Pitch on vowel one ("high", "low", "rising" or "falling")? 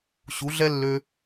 rising